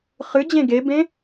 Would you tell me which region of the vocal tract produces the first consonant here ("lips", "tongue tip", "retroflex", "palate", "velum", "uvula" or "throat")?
uvula